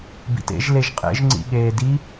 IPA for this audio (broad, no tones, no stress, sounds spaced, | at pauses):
b ḭ t ḛ ʒ l e ʒ qʼ ḛ ʒ ŋ͡ǀ ḭ ɠ eː d i